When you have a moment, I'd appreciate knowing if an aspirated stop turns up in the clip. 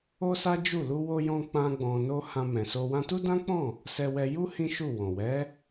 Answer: no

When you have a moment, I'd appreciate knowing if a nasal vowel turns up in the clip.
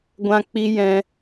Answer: yes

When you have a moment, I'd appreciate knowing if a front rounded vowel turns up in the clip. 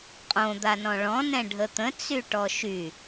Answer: yes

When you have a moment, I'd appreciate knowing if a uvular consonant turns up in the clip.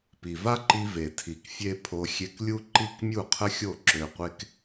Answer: yes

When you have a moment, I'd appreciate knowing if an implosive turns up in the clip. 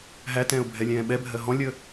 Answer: yes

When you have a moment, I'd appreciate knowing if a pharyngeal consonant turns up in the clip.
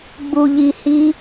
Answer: no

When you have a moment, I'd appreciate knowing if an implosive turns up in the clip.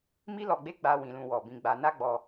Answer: no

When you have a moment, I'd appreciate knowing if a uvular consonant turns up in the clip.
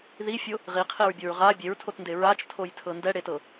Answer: yes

